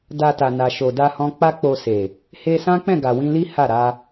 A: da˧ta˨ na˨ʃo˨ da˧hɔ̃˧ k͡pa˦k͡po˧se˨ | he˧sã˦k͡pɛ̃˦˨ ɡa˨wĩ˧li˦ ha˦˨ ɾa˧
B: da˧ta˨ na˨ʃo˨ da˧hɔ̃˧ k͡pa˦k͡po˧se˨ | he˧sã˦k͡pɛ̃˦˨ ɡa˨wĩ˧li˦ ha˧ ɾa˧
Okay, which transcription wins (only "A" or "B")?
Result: A